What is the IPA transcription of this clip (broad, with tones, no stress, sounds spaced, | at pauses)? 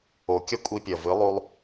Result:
o˨ kʲ ɐ˦ kʷʼ i˧ pʲ ɐ˨ v ɨ˨˦ lˠ u˧ lˠ